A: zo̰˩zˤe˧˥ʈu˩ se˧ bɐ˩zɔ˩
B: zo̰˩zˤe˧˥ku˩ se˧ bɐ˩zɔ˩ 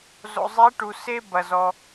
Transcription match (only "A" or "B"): A